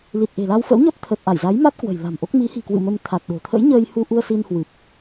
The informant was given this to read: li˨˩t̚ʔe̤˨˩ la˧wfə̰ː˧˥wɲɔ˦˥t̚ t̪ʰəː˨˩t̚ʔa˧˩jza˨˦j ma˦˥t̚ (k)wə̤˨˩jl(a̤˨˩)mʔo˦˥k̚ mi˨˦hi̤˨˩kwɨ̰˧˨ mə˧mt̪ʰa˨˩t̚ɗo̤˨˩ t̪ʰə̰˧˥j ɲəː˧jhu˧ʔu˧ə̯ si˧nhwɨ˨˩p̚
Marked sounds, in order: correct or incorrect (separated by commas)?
correct, correct